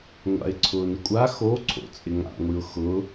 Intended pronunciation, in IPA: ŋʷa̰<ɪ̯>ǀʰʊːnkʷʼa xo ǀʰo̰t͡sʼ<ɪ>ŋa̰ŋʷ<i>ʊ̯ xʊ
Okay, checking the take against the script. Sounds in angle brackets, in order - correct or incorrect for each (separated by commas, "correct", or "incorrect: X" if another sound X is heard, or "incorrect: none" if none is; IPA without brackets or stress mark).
correct, correct, correct